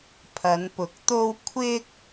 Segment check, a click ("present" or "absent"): absent